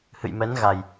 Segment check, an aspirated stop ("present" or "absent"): absent